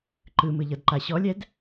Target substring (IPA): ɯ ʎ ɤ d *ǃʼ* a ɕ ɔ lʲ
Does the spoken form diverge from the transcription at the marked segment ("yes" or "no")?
yes